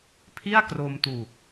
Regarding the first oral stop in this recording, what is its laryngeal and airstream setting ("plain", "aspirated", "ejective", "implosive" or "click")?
aspirated